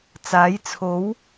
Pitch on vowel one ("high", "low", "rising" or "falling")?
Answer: rising